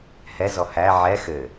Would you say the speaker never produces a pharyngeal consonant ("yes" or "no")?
no